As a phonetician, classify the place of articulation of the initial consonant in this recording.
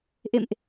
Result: glottal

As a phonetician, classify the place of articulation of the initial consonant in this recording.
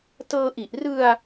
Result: alveolar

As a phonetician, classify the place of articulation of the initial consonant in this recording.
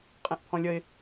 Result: uvular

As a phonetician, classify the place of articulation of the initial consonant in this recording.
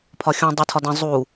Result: labial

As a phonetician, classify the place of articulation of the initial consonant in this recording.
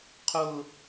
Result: uvular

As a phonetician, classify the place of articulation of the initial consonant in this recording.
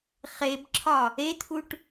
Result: uvular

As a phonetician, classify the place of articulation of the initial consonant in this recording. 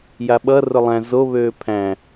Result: palatal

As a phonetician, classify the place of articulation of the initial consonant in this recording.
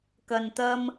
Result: velar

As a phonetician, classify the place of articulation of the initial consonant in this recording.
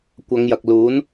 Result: velar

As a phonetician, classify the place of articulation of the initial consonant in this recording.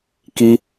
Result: velar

